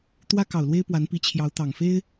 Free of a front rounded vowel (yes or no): yes